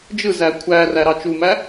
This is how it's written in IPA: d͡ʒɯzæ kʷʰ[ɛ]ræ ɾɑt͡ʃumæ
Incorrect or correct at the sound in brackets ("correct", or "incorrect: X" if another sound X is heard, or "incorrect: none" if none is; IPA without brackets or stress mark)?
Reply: incorrect: æ